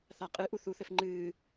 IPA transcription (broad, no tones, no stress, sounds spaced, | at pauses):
θ a qʼ ɨ ʔ u θ u θ ɘ f ŋ͡ǃ ɨː